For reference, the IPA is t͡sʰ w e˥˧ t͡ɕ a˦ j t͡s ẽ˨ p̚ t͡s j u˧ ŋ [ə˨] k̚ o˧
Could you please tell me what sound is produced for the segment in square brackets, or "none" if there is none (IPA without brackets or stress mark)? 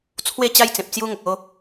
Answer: ə˨